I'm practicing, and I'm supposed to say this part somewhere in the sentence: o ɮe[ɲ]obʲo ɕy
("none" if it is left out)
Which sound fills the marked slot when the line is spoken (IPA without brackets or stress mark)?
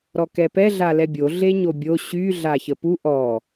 ɲ